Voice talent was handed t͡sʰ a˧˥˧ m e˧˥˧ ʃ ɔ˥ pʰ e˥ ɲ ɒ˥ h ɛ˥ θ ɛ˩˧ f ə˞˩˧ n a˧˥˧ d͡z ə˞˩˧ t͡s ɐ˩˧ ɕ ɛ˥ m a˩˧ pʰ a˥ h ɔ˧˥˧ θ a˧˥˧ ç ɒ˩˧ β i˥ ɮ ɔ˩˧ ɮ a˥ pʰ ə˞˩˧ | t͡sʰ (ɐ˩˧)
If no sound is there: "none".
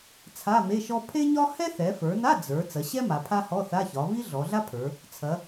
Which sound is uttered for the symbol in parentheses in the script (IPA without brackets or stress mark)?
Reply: ɐ˩˧